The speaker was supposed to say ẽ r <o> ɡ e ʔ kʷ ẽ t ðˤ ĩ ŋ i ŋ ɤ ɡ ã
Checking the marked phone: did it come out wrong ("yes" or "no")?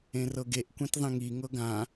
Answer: yes